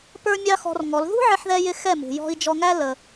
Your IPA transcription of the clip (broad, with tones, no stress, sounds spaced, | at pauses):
p ə˞˦ mʲ ɑ˦ x ɔ̤˧ r ŋ ɔ˨˦ l ð ṳ˦ ʕ ɪ˧ ħ ð ɛ˧ j ɪ˧ x ɛ˦˨ m ṳ˨ j ɔ̤˧ i̯ d͡ʒ ɔ˧ ŋ æ˦ l ə˧